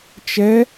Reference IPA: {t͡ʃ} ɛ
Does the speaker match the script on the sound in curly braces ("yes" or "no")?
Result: yes